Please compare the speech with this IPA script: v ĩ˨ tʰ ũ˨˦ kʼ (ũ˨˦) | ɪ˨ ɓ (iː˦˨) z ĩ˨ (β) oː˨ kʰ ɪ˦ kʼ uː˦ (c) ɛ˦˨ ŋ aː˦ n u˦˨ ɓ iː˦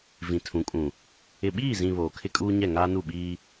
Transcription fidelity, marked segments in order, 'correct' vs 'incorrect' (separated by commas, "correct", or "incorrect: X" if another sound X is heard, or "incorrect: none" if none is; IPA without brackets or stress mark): incorrect: ũ˨, correct, correct, incorrect: ɲ